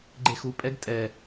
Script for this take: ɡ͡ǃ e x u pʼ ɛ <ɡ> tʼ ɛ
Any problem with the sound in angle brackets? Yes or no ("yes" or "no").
no